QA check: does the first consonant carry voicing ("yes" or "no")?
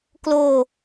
no